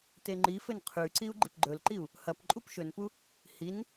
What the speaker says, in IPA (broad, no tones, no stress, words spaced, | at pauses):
teŋ͡ǃifɘn qʰʉǀiu̯ ɡ͡ǃipɡ͡ǃɵlǃiu̯ | hɐpǃʼup ʃɵnpu | hin